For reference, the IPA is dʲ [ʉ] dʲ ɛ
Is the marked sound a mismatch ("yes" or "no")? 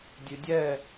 no